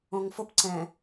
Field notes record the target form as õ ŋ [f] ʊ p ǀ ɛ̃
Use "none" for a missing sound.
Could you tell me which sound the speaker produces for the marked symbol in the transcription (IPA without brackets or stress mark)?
f